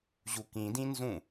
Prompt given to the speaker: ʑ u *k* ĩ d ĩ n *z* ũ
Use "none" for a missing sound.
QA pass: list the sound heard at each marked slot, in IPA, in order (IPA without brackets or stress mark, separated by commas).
k, z